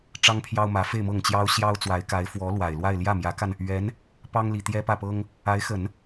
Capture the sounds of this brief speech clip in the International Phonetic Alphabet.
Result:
ʈ͡ʂ ɑ˥ ŋ pʰ j ɑ˥ ʊ̯ m ä˧˥ f e˥˧ ɪ̯ m ɤ˥˩ ŋ t͡ɕ j ɑ˥ ʊ̯ ɕ j ɑ˥ ʊ̯ t͡s w a˧˥ ɪ̯ k a˧˥ ɪ̯ f w ɔ˧˥ l w a˨˩ ɪ̯ l w a˥˧ ɪ̯ l j ä˥˩ m j ä˧˥ k a˧ n | ɥ ɛ˧˥ n | p ɑ˥ ŋ l i˨˩ t̪ j ɛ˥ p ä˥˩ p ɤ˥ ŋ | a˧˥ ɪ̯ x ə˨˩˦ n

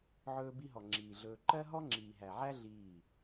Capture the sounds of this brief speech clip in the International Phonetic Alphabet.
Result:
ʕ ɵː˧ b i˧ ɦ ɔ˨ ŋ͡ǁ iː˨ ɮ ɵː˧ ǃ ɜ˦ ɦ ɔ˦ ŋ͡ǁ iː˨ ɦ æ˨ ʕ æ˦ ɮ iː˦˨

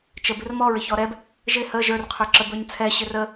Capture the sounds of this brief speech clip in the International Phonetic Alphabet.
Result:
t͡ʃ ə b ɪ r m ɔ ɹ ɪ ç ɔ ɾ ɛ b | ʒ ɪ h ə ʒ ə˞ r qʰ ə˞ ǁ ə b ə˞ ɲ t͡sʰ ɛ ɕ ɪ r ə

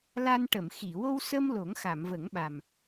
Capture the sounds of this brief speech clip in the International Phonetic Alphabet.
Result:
l a˧ n ʈ ə˨˩˨ m x i˨˩˨ w o˧ w s ə˧ m l o˨˩˦ ŋ x a˨˩˨ m v ə˨˩˦ ŋ ɓ a˨˩ m

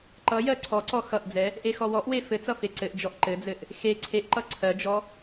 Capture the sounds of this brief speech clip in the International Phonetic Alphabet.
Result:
ǃ ʌ j ɜ ǀʰ ɔ ǀ ɔ x ʌ ʔ d͡z ɛ | ʔ e x ɔ w ɔ ʔ w e f ɘ t͡s ʌ f e ǀ ɘ ʔ d͡ʒ ɔ ʔ ǃ ɘ d͡z ɘ ʔ | x e ǀʰ e ʔ ǃ ʌ ǀʰ ɜ d͡ʒ ɔ

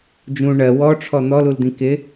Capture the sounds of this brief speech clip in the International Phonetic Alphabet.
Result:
d͡ʒ ũ ɳ ɜ w ɔ ʈ͡ʂʰ ɔ n̪ ɔ l u l d̪ ĩ k ɪ

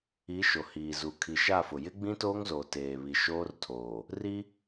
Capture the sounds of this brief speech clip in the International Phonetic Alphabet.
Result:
i˨˦ ʃ o˨ h iː˨ z u˨ kʰ i˨ ʃ a˦˨ f ʊ˨ j ɪ˦ ɡ͡b ĩ˦ t oː˦ ŋ z oː˨ t eː˨ β i˨ ʃ oː˦ r tʰ oː˨ | r i˦

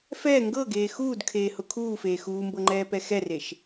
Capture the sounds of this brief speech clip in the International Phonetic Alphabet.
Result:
f ɛː ŋ ɡ ɤ ɡ eː x uː d kʰ eː h ʊ kʰ uː f eː x uː m b ɤ ŋ͡ǃ ɛː p ɛ x ɛ r e ʃ

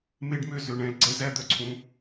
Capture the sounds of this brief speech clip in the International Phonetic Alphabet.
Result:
m e˦ ɖ m ø˦ z ø˧ ɳ ɛ̃˧ l ɡ͡ǀ ɛ˦ z æ˦ d̪ œ˦ ǀʰ ũ˧

